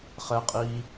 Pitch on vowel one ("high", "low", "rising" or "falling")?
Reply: low